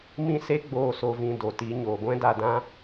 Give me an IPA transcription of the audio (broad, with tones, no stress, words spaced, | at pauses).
mĩ˦se˦ɡ͡boː˧ so˧vĩ˧do˨ti˨˦ ɲoː˨ɡʷɛ̃˦da˧dã˦